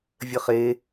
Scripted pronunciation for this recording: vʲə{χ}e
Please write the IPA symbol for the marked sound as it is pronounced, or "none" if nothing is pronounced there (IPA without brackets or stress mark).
χ